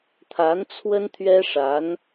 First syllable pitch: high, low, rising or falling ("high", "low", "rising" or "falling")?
rising